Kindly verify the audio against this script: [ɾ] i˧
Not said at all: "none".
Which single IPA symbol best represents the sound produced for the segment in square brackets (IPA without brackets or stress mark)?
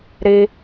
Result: ɾ